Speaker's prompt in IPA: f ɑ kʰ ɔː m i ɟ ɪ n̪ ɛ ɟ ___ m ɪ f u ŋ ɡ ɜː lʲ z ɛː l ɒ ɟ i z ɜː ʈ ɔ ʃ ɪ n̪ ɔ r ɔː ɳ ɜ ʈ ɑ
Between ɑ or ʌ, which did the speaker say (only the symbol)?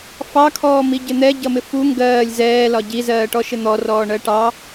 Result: ʌ